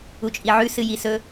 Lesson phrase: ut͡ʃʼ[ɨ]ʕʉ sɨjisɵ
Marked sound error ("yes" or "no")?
yes